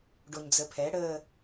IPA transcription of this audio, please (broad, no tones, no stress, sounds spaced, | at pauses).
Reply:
ɖ o ɲ d͡z ə pʰ ɛ ɽ ə